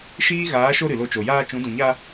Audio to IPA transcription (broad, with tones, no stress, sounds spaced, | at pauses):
ʃ iː˦ ɣ aː˨˦ ʃ o˧ ɾ ɨ˨ l o˧ t͡ʃ o˨ j aː˧ t͡ʃ ũ˨˦ d ũ˨ ɲ a˧